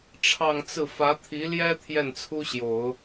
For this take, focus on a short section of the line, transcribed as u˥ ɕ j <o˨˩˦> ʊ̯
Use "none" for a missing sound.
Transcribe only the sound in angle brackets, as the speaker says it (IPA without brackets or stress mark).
o˨˩˦